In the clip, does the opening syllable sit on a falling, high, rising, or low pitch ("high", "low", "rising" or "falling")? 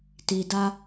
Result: low